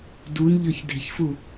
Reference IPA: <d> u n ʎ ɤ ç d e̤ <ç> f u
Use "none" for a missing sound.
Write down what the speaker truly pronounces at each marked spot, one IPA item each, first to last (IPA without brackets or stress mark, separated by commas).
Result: d, ç